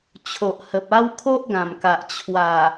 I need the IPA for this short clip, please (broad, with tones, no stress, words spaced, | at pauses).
t͡ɕʰo˨ʔhə˨p̚a˦w kʰo˦ʔɡã˨˩mka˨ʔ t͡ɕʰwa˨˩